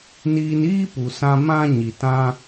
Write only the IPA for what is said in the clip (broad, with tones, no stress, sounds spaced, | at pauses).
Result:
n iː˧ n iː˦ p u˨ s ã˧ m ã˦ ɲ i˨ t ã˦